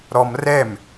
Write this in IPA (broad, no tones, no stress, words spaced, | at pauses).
ɾɔm rɛm